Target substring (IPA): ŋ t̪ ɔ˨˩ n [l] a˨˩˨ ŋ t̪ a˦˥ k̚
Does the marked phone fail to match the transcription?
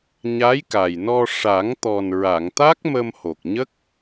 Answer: yes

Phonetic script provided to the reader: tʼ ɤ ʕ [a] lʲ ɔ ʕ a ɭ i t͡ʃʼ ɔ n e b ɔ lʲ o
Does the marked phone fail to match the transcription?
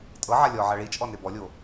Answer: no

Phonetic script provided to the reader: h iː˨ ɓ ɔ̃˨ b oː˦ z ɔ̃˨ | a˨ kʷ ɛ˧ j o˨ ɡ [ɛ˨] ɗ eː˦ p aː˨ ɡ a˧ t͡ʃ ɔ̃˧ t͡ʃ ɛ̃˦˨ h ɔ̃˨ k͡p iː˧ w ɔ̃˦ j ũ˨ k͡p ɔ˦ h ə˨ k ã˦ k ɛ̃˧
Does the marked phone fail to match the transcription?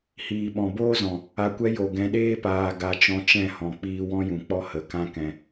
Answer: yes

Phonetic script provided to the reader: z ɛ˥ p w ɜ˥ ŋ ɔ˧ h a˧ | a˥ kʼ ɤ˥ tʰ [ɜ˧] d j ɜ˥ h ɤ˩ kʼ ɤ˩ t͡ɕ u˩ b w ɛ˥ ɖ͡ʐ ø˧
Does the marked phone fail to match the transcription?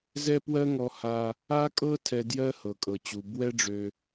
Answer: yes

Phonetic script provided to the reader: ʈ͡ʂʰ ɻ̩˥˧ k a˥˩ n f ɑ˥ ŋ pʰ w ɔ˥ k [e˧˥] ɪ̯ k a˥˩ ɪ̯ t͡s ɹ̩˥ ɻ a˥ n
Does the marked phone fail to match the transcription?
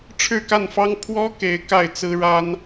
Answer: no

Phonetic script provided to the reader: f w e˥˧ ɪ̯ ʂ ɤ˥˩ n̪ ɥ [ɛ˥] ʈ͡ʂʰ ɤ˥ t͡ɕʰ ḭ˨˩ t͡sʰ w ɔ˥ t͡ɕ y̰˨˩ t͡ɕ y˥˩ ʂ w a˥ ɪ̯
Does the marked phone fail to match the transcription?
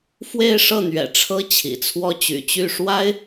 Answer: yes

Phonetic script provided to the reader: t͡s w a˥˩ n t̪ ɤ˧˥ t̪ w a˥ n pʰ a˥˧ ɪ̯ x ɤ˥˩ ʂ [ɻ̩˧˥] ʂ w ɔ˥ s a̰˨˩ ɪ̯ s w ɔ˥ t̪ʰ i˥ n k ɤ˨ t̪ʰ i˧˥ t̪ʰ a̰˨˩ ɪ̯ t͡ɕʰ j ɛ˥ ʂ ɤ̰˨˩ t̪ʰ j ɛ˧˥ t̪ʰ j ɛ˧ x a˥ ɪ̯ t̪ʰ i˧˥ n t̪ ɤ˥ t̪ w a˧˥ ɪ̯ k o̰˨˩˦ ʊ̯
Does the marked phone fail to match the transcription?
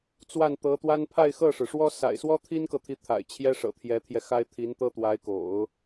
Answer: yes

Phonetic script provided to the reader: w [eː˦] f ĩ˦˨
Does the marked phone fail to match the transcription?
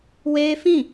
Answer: no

